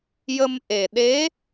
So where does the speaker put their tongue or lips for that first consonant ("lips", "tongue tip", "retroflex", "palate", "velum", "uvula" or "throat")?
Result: palate